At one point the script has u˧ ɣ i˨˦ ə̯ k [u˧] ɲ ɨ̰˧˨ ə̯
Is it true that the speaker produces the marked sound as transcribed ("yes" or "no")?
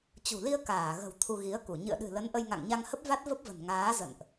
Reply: no